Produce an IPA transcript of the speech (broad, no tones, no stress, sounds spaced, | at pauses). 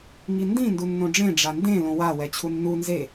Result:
ŋ i n d ĩ n d u nː õ ɖ͡ʐ ẽ ɖ͡ʐ a n d ẽ l õ w a w ɛ t͡ɕʰ u nː u n z e